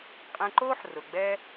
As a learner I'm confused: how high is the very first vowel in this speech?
mid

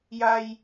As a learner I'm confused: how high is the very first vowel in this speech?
low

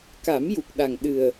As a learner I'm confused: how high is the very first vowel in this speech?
low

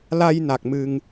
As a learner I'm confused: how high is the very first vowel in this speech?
low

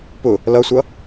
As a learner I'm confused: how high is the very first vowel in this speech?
high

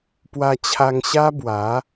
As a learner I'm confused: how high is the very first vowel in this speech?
low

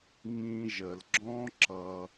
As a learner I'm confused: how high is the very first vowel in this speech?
high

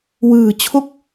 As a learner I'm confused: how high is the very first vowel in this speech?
high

